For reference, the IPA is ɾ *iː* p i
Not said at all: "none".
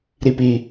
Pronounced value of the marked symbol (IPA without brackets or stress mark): i